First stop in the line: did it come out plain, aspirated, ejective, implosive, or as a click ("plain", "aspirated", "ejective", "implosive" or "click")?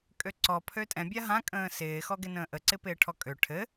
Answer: ejective